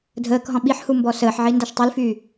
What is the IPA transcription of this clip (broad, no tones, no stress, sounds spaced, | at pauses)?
dʱ əː k ɦ ɔ̃ ɓ i ħ h u m b ɔ s əː ħ ʕ i n d a ʃ tˤ y l f yː